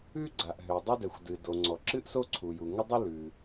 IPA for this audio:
ʉ˥ ɡ͡ǀ a˩ ʔ ɦ ø˩ dˤ ə˥ d ɛ˩ xʷ d ɨ˩ d o˩ ŋ͡ǀ ɔ˩ ǁ ɨ˥ ʔ s o˥ ǀʰ u˩ j u˩ ŋ ə˥ dˤ ɨ˥ l ʉ˩

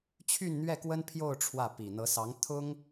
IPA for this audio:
t͡ɕʰ y˥˧ n n̪ ɥ ɛ˥˩ k w ə˥ n pʰ j o˥˧ ʊ̯ ʈ͡ʂʰ w ä˥˩ p i˨˩ n̪ ɤ˧˥ s ɑ˧˥ ŋ t̪ʰ ʊ˥ ŋ

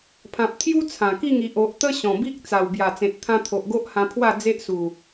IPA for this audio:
pʰ ã˨ p̚ t̪ʰ j u˦ t͡sʰ ã˨˩ k i˥˧ ŋ i˨ ʔ o˨ ʔ t̪ ə˦ ɕ ɔ̃˨˩ b i˦ k̚ t͡s a˨˩ w b j a˨˩ t͡s ẽ˨ t̚ t̪ʰ ã˧ t̪ʰ o˨ ʔ ɡ o˦ ʔ h ã˧ pʰ w a˥˧ d͡z e˦ ʔ s u˨˩

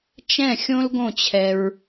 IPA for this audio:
t͡ʃ ɛ̃˥˨ xʲ õ˥ l ɡ õ˥˨ t͡ɕʰ ɛ˧ ɹ

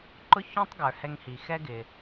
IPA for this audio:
ǃ ʊ˥ ç ɔ̃˥ tˤ ɡ ə˞˩ h ɛ˧ ŋ h i˩ x ɛ˥ ɡ ɪ˩

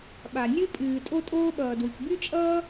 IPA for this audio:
ɓ a˩ nʲ ɨ˥ pʼ ɨː˩ tʼ o˥ tʼ oː˥ ɓ ʌː˩ d w ɨ˩ k b y˥ t͡ʃʼ ʌː˥

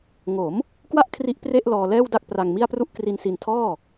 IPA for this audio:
ŋ o˩˦ m | k w a˥˩ ʔ kʰ r i˦˥ ʔ p r e˥˩ ʔ l ɔː˧ l ɛː˥˩ w d a˥˩ k̚ p r a˧ ŋ m i˥˩ a̯ p r u˥˩ ʔ k r i˧ n s i˧ n tʰ ɔː˥˩

